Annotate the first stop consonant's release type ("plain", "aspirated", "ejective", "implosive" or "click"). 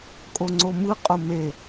ejective